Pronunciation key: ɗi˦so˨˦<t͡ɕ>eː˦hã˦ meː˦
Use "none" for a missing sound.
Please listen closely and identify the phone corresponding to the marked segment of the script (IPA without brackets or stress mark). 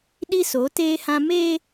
t